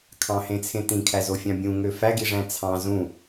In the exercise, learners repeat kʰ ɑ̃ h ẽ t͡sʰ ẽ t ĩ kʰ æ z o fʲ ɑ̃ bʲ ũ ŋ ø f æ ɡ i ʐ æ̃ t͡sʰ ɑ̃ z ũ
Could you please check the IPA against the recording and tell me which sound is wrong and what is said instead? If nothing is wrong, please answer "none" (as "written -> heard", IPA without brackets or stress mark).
none